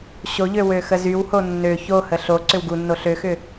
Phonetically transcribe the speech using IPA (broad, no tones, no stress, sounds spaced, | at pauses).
ɕ o ʎ ø w ø x ə z y w h o nː ø ç o h ə ɬ o ǀ ʏ w ɡ u nː o ɬ ø x ʏ